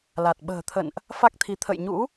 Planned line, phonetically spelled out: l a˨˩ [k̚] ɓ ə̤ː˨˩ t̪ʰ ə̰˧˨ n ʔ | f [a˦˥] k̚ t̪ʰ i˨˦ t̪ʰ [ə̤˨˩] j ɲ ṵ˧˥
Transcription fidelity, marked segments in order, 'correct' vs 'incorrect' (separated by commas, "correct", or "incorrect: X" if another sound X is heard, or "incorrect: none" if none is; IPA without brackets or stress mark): incorrect: t̚, correct, incorrect: ə̰˧˨